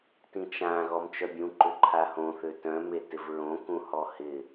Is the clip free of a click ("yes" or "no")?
no